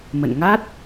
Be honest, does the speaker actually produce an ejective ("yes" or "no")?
no